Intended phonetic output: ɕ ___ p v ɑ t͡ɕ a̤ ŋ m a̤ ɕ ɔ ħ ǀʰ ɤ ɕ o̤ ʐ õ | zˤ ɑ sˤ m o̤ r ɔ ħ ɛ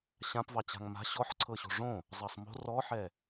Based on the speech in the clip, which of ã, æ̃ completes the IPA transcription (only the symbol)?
ã